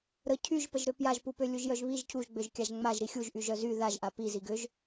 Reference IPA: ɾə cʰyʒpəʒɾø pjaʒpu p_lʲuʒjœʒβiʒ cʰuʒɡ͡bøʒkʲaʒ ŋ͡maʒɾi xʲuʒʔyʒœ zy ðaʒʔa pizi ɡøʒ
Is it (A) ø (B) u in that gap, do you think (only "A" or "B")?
A